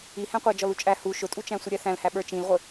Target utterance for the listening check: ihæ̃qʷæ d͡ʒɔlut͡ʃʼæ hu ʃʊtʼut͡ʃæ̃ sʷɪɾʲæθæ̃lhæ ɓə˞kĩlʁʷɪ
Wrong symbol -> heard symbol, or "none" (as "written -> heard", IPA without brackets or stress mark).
k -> t͡ʃ